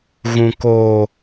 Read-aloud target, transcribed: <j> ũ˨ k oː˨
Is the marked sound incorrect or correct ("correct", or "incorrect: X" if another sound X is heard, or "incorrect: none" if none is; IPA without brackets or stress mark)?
incorrect: ɣ